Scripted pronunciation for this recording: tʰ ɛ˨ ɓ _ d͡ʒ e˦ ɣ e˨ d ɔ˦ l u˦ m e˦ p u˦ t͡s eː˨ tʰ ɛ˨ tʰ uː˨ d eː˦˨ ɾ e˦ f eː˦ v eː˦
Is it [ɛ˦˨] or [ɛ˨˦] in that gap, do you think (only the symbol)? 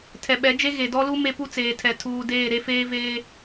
ɛ˨˦